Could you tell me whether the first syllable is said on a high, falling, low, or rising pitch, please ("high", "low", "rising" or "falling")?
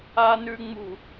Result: low